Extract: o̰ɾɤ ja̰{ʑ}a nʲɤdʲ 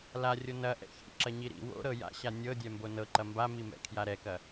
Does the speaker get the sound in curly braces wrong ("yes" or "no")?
yes